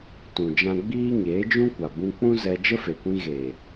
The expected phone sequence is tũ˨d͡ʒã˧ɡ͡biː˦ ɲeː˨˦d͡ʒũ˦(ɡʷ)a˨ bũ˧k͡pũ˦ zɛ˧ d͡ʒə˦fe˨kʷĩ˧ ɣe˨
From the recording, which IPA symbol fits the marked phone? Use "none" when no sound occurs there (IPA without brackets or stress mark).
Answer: kʷ